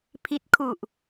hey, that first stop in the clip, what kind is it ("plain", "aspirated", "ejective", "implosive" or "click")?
aspirated